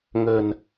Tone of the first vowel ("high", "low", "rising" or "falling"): low